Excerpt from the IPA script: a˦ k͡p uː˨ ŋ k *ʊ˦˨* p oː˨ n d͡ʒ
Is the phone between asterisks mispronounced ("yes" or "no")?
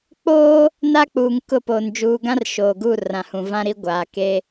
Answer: no